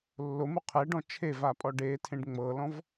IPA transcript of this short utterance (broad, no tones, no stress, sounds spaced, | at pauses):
lː o m u qʰ ɛ ɖ ɔ̃ t͡ʃʰ e v a pʼ ɔ ɖ e tʰ ẽ ɖ ŋ͡m ɤ l ɔ̃ v